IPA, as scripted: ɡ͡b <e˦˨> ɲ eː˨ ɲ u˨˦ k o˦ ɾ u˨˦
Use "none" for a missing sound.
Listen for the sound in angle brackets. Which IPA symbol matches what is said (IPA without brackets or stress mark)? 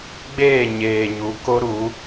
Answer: eː˦˨